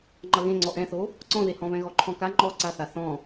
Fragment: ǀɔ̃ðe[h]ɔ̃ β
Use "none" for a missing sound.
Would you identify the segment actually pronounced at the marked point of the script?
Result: h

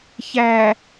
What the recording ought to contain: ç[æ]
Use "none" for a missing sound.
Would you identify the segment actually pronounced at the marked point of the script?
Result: æ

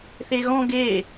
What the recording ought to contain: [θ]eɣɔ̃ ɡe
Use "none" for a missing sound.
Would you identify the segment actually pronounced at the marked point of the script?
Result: θ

